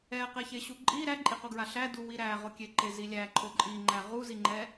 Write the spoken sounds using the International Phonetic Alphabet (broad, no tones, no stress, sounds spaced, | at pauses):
ɛ q ɛ ç e ɕ u ǃʼ i ɾ æ ǃʼ i q o ɡ ɹ a ɬ æ d u w i ɾ æ ʁ o kʲ e ǃ e z i lʲ æ ǃʰ o ǃʼ i ŋ͡ǃ æ ʁ u z i ŋ͡ǃ ɛ